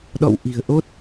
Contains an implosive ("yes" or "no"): yes